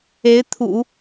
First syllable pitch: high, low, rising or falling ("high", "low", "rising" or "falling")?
rising